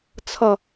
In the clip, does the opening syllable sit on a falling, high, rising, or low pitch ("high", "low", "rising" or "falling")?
high